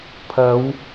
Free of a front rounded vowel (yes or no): yes